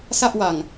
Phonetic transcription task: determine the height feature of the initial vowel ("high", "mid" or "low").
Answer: low